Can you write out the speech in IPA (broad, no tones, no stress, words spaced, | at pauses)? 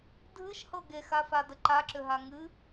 dʱɨʃhɤ ɡexafadə ǃaǁʏɦa ŋɨ